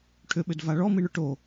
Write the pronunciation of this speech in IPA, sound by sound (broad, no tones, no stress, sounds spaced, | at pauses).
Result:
ʈʰ ʏ ɓ ʏ d v a ɭ ɔ m i ɳ ʏ ʈ o